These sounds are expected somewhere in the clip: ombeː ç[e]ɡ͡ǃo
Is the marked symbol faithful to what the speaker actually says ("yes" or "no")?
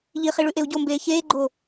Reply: no